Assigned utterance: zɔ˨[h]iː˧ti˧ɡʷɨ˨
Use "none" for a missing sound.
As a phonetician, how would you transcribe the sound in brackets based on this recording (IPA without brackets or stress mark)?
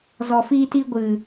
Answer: f